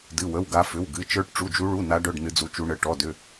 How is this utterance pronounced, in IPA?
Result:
d ɨ˧˥˧ w ə˧˥˧ w ɡ a˦˥ f ʏ˧˥˧ w ɡ ɨ˧˥˧ t͡ʃ ə˞˦˥ ʈ ʈ͡ʂ u˧˥˧ d͡ʒ u˦˥ ɭ u˧˥˧ n a˦˥ ɖ œ˧˥˧ ɖ n ɨ˦˥ d͡z u˦˥ t͡ʃ u˦˥ ɳ ə˧˥˧ ʈ ɔ˧˥˧ d ʏ˧˥˧

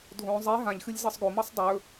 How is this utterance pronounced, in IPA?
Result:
dʱ õ zˤ e ɦ ã ʎ x ɨ lʲ z ɤ sˤ ɡ o m ɤ sˤ dˤ ɵ

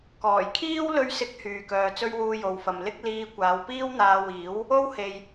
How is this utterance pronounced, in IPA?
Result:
k ɔː˨˩ j kʰ iː˥ w l ɵ˧ ɥ s ɪ˨˥ k̚ h yː˨ k œː˨˧ t͡s ɵ˥ ɥ w uː˧ j o˨ w f ɐ˨ m l ɪ˥ k̚ l iː˧ kʷ aː˨˧ w p iː˥ w n̪ aː˧ w iː˨˥ w | o˥ w h e˨ j

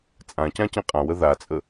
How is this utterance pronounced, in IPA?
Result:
t͡sʼ ã c ã c ẽ qʼ ã w ə ð a t͡sʼ ə

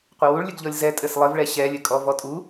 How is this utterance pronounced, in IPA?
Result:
qʷ ɘ w u ɭ lʲ ɘ ɡ ʎ ɔ lʲ z ɛ tʼ ɘ s lˠ ɘ v ɭ ɛ ɕ ɛ lʲ ɘ kʼ ɔ v ɔ tʼ u

